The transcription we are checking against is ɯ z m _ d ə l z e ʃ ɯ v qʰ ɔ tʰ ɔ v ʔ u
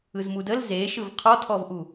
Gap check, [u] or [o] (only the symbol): u